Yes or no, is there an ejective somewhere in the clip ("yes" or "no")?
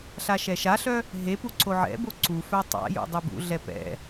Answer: no